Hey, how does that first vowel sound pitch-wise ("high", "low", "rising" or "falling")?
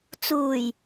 low